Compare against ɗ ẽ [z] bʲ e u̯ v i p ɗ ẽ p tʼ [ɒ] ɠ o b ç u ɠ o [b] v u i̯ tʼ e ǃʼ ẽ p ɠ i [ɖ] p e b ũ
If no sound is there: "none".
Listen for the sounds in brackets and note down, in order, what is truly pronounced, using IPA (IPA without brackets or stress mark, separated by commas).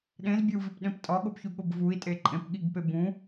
z, ɒ, b, ɡ